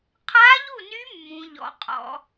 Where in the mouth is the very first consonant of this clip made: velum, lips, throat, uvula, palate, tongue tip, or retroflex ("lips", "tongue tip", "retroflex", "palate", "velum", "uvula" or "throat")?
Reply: uvula